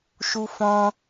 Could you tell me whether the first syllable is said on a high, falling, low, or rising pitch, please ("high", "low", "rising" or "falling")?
high